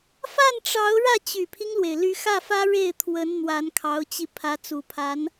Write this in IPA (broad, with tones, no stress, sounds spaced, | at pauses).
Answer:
f a˥˩ n ʈ͡ʂ ɑ˧˥ ʊ̯ ɻ ä˥˩ t͡ɕ y˨˩ pʰ i˦ ŋ l w e˩ ɪ̯ l y˧˥ x ä˥˩ f ä˥ ɻ e˥˩ ɪ̯ t̪ʰ w ə˧˥ n n̪ w a˧˥ n kʰ ɑ˧˥ ʊ̯ t͡ɕ i˧ pʰ ä˧˥ t͡s u˨˩ pʰ a˧˥ n